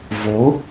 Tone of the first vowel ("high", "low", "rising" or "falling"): rising